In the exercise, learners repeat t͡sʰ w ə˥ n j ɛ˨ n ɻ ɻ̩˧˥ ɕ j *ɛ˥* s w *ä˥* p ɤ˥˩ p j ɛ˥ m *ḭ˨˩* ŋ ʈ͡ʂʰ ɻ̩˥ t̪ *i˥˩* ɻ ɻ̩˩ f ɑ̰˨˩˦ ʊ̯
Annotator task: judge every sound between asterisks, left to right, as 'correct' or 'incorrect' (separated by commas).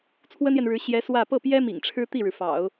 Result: incorrect, incorrect, correct, correct